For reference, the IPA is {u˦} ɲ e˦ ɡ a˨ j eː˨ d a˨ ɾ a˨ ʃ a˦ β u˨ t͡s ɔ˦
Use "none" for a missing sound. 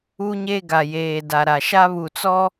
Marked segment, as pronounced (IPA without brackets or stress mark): u˦